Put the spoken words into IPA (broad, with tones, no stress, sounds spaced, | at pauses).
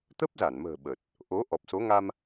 t̪ ə˦˥ p̚ z a˧˩ n m ə̤ː˨˩ ɓ ə˨˩ t̚ | ʔ o˨˦ ʔ ɔ˨˩ p̚ s o˨˦ ŋ a˧ m